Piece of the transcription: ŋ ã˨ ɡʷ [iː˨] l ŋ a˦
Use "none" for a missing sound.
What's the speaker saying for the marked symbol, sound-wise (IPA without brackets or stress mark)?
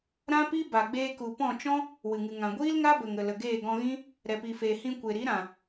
iː˦